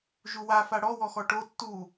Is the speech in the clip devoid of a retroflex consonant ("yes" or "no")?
no